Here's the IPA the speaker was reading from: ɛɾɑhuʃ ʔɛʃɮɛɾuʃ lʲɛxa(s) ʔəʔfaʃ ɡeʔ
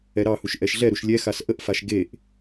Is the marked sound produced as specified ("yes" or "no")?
yes